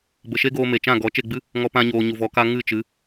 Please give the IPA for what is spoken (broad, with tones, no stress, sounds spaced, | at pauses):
b ə˨ ʃ e˦ ɡ oː˧ m e˨ t͡ʃ ã˦˨ ɡ ɔ˨˦ t͡ʃ e˦˨ ɡ͡b ɨ˦ | ŋ ɔ˧ p ã˧ ɲ oː˨ ɲ u˨ v ɔ˨˦ k a˦ ŋ ɨ˦˨ t͡ʃ ɨ˨˦